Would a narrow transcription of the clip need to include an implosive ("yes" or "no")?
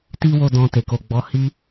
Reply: no